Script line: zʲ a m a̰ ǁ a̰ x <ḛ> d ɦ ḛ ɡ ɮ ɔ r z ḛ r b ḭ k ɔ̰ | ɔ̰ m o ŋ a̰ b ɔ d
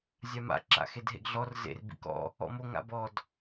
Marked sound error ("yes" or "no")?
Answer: yes